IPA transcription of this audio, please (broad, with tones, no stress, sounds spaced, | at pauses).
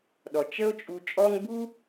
ɗ ɔ˩ t͡ʃ ə˦ o̯ t͡ʃʼ u˨ t͡ʃʼ ɔ˦ ŋ b u˥